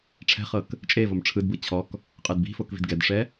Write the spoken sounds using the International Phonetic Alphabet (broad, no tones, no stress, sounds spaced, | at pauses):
ʈ͡ʂʰ ɛ̤ χ ɤ k | t͡ʃʼ e v o m ʈ͡ʂʰ ɯ d b ɯ t͡ɕʰ ɔ k | qʼ ɯ d b i̤ f o k v i̤ d ɡ ɛ d ʂ ɛ